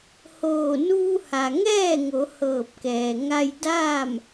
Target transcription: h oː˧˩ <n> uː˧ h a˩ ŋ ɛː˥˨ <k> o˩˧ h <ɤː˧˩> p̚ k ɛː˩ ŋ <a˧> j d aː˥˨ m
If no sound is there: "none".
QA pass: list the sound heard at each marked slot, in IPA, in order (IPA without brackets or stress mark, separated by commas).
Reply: n, ŋ, ɤː˧˩, a˧